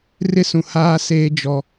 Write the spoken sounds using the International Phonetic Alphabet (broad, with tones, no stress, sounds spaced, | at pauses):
r ɪ˦ s ũ˨ h aː˦ s eː˦ d͡ʒ ɔ˦